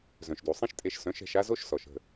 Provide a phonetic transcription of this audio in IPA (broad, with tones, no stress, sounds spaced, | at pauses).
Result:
z œ̃˩ ʃ d u˩ sˤ ĩ˥ ʃ tʼ e˧ ʃ s œ̃˩˥ ʃ ɛ̤˧ ʃ a˥ z o˥ ʃ s ɔ˩ ʃ ə̤˥˩